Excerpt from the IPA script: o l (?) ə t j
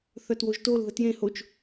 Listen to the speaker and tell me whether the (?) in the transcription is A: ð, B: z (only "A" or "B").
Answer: A